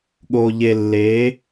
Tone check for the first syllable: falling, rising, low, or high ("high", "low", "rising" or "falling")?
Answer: low